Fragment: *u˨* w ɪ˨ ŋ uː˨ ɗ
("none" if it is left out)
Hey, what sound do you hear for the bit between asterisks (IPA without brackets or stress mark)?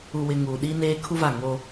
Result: u˨